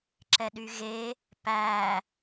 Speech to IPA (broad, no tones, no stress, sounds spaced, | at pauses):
ǁ ɛ ɗ y ɣ e | p æ